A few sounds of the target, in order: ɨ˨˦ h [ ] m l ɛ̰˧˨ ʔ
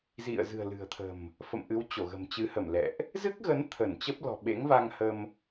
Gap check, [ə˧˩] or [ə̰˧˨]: ə˧˩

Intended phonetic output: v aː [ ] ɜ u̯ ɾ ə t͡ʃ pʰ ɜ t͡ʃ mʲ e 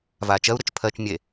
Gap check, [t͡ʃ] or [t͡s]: t͡ʃ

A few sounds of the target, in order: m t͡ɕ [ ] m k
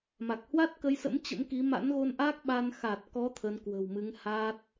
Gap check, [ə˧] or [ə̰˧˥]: ə̰˧˥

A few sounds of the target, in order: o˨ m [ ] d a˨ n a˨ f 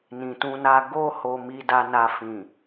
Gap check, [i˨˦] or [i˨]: i˨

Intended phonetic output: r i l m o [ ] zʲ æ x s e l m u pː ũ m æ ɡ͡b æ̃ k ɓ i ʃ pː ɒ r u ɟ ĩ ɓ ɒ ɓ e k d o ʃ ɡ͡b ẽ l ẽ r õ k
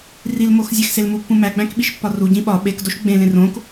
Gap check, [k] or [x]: x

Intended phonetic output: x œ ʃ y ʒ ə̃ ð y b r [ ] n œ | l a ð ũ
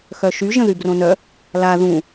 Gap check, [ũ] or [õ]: õ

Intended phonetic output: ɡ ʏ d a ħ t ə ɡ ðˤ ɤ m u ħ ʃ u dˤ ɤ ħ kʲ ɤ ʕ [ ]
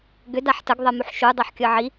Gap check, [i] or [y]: i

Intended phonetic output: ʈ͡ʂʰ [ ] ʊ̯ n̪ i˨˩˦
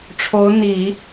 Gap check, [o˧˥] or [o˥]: o˧˥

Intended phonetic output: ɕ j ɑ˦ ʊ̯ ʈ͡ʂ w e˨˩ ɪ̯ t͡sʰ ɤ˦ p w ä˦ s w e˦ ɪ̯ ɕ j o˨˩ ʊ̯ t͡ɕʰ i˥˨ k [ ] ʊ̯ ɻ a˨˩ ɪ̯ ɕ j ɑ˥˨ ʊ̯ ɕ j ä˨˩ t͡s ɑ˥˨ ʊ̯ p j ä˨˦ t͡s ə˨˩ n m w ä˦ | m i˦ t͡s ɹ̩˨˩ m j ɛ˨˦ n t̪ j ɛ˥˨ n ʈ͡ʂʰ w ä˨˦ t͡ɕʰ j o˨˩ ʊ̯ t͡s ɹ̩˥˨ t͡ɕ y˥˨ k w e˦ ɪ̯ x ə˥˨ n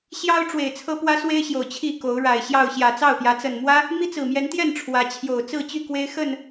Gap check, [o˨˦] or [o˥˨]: o˨˦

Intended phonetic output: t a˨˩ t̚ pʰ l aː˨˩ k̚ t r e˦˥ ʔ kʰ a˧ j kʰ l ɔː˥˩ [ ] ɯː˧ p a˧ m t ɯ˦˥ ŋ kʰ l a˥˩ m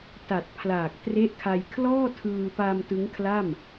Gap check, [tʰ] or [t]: tʰ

